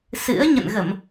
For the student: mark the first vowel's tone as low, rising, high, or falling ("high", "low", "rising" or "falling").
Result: rising